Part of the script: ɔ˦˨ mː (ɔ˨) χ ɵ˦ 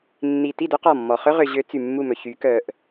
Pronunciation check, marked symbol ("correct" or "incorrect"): correct